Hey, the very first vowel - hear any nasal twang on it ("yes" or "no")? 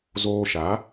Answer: no